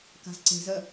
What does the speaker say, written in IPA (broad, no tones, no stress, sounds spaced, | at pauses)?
k a̤ z ǀ e̤ z ɜ